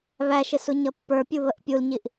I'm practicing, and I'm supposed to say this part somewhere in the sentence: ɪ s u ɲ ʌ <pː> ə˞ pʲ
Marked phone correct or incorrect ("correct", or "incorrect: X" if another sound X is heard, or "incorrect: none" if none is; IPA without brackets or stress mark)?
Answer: correct